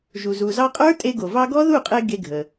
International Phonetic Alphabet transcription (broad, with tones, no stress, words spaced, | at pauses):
ʒu˩zu˩zɑ˧qʼə˞˦˥ tʼe˧ɡo˩ vɑ˧ɡɔ˦˥ ðu˥˩qʼe˧ ɡe˧ɡʱə˩